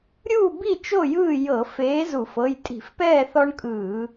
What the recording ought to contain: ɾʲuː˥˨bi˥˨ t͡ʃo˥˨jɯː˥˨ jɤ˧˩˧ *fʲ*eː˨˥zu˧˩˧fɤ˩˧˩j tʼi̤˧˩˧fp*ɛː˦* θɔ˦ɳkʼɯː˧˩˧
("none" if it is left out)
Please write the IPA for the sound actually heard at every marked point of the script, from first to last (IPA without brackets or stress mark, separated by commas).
f, ɛː˥˨